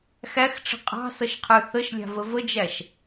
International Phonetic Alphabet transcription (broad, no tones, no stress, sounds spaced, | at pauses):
x æ x ʈ͡ʂ ə̤ qʼ ɑ̤ s ʌ ʃ qʰ ə˞ θ ə ʃ lʲ ɑ̤ v ə v ə d͡ʒ æ ʃ